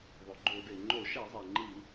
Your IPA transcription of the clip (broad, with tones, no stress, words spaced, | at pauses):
ðˤo˩ɡ͡ǃo˧˩˧de˩ ŋ͡ǃo˧˩˧ʃɛ˧˩˧zˤe˩ ŋ͡ǃi˧˩˧